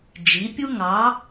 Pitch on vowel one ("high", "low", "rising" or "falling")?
rising